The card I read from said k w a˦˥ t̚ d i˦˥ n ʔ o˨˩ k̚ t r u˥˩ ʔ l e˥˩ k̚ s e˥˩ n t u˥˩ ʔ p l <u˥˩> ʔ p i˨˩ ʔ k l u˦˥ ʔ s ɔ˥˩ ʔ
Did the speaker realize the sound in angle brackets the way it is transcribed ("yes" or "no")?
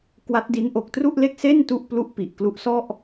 yes